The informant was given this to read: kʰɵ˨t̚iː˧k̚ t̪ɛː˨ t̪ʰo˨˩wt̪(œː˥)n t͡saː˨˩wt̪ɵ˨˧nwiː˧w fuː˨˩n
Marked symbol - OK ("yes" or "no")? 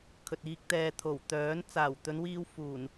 no